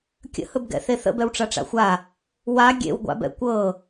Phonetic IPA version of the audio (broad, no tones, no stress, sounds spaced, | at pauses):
kʲ ə̰ h ɵ b ɡ ɛ̰ θ e θ ə̰ b ɛ w ʈ͡ʂ a ʈ͡ʂ a̰ xʷ a | w a ɡʲ ḛ w ɡʷ a̰ b ɛ̰ kʷ ɤ